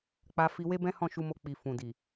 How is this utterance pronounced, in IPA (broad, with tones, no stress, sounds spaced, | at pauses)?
k͡p a˧ f i˧ w e˦ b ɛ̃˦ h ɔ̃˦˨ ʃ u˧ m o˧ k͡p i˨ f ũ˨ d i˨